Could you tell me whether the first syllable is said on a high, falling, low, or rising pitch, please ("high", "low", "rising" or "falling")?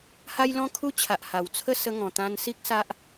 high